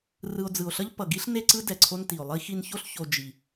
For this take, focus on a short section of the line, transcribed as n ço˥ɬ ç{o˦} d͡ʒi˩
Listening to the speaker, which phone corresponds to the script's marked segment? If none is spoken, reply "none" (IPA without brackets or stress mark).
o˨